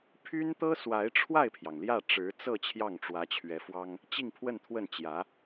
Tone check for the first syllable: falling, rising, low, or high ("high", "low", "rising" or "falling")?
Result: high